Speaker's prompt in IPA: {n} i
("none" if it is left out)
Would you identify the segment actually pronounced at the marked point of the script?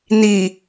n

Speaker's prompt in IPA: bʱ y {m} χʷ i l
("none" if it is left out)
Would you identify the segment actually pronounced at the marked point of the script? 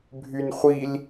n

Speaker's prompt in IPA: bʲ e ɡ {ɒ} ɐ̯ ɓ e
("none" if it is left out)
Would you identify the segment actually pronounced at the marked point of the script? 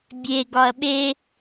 ɒ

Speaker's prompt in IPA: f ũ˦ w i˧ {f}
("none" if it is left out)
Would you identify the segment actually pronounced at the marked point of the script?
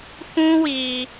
none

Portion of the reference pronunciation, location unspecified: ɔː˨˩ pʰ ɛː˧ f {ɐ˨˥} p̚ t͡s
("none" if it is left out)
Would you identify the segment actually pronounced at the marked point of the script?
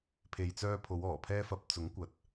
ɐ˨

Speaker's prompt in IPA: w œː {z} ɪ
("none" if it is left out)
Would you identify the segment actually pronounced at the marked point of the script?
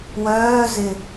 z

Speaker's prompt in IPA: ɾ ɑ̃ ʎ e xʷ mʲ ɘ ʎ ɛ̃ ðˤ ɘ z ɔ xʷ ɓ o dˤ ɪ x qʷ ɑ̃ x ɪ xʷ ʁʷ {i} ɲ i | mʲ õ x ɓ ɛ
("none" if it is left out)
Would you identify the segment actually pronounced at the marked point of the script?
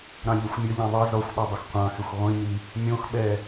ĩ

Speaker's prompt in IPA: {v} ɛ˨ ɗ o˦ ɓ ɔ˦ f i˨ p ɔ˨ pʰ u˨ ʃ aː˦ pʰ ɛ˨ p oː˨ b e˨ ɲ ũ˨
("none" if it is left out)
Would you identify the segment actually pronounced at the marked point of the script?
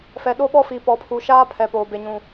f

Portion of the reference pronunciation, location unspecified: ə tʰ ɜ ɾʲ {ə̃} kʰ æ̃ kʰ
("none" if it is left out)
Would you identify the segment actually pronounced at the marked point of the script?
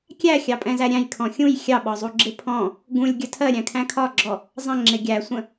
æ̃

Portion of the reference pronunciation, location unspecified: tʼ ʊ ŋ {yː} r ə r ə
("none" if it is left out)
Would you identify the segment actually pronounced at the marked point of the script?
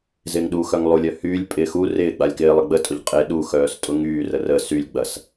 yː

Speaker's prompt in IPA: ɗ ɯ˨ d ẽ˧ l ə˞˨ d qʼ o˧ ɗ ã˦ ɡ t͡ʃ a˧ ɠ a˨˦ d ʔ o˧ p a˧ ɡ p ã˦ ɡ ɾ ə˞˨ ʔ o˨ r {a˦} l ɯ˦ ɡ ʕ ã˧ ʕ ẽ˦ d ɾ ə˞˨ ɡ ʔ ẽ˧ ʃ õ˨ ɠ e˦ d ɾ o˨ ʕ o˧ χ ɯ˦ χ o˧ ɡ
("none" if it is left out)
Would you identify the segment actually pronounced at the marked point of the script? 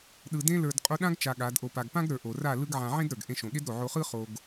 a˦˨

